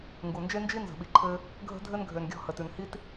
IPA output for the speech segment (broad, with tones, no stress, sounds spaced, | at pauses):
ŋ ɡ u˨ n d͡ʒ e˦ n d͡ʒ i˦ n z ə̤˨ ɓ i˨ ǃʰ ɘ˧ | ɡʱ ə̤˧ dʱ ɘ˧ n ɡʱ ø˨ n ɡʲ ɔ̤˦˨ h ə˨ t ʉ˨ n h i˦ t